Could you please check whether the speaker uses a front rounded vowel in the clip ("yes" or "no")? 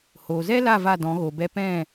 no